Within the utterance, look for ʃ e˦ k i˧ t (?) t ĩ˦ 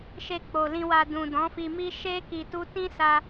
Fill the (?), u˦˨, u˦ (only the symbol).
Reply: u˦